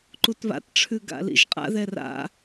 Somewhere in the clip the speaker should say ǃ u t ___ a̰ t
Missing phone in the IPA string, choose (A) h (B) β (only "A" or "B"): B